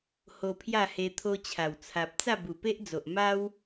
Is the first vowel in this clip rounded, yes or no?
yes